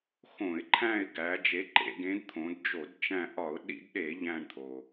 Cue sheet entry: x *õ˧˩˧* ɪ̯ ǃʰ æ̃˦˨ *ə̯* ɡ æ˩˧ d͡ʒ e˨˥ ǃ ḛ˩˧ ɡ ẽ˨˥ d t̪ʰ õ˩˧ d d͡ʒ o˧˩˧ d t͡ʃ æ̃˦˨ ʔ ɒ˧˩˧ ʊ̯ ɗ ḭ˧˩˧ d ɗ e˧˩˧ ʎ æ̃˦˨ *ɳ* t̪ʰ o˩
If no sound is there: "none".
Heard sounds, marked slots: õ˧˩˧, ɪ̯, ɳ

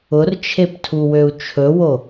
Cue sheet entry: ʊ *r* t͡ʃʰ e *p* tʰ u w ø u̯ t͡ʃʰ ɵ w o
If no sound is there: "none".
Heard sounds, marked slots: r, p

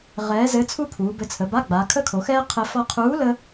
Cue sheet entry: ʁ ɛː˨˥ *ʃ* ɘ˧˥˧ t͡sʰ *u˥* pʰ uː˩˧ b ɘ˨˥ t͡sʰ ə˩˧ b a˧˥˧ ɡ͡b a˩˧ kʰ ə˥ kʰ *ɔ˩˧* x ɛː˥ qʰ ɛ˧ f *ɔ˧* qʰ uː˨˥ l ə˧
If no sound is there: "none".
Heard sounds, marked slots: z, u˥, o˩˧, ɔ˧

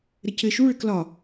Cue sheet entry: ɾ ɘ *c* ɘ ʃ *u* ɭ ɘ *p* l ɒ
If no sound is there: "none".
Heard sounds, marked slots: c, u, k

